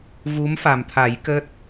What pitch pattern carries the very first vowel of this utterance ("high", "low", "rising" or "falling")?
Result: rising